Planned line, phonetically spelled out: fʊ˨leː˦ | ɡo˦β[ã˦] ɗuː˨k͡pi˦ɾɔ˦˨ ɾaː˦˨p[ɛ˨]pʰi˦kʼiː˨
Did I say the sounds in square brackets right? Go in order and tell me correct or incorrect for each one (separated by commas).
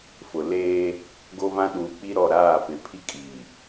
correct, incorrect